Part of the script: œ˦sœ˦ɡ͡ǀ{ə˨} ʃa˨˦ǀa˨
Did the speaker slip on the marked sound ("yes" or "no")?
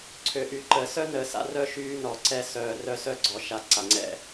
yes